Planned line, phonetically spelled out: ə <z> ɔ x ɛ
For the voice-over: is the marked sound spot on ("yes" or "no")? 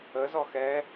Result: yes